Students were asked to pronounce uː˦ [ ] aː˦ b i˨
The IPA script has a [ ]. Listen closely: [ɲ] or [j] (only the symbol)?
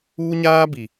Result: ɲ